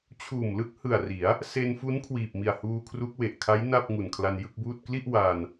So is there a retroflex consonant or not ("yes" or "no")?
no